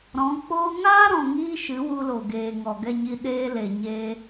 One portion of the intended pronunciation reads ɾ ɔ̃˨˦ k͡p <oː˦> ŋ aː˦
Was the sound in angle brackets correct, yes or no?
yes